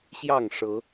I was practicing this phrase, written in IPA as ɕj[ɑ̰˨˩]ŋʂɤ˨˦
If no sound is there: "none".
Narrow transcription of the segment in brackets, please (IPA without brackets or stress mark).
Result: ɑ˥˨